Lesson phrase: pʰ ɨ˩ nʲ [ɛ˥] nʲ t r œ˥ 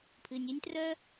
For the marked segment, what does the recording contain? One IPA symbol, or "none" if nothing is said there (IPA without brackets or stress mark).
ɛ˥